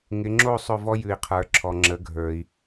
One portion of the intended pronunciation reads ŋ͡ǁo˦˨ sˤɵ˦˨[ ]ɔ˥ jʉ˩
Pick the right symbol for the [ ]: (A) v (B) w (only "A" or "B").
A